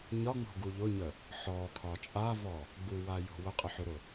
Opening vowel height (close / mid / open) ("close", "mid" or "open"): open